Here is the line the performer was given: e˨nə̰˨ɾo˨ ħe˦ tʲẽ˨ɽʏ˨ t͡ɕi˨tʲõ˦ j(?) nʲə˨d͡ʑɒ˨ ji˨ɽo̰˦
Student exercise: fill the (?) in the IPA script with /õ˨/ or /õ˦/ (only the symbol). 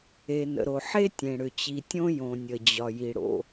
õ˨